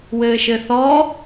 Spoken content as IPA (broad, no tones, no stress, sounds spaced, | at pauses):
w ɘː ʃ ɘ θ ɔ